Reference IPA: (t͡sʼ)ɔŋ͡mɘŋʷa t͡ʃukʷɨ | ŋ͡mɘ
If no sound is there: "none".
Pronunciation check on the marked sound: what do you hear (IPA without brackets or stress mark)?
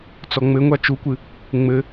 t͡s